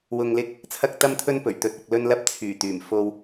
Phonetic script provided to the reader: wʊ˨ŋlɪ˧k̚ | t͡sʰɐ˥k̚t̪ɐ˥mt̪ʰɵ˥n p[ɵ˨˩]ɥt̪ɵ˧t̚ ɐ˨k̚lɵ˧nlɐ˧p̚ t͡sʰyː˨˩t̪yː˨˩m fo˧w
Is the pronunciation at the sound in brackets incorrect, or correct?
correct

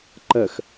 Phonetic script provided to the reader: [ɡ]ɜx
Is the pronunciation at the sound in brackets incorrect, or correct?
incorrect: ǃ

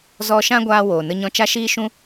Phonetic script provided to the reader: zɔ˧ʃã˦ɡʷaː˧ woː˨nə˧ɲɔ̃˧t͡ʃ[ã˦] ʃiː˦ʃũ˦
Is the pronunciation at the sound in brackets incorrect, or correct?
incorrect: a˦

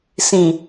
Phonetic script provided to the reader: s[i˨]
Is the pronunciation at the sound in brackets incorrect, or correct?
incorrect: ĩ˨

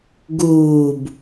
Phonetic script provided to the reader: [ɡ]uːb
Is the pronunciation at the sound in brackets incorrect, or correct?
correct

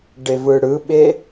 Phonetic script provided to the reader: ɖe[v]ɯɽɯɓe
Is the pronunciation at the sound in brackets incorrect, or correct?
correct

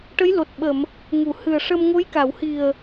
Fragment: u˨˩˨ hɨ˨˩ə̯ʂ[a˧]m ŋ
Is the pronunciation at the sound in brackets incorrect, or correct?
incorrect: ə˧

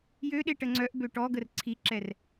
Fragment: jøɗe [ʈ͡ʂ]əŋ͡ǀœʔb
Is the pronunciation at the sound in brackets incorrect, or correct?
incorrect: ʈ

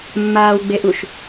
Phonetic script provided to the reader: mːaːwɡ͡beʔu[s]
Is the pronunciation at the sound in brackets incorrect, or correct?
incorrect: ʃ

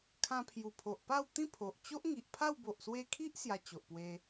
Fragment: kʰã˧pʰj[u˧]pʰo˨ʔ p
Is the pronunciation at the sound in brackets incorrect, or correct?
incorrect: u˨˩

